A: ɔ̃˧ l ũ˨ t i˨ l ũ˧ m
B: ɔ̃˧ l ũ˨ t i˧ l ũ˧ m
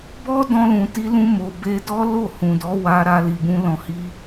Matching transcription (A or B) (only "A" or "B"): B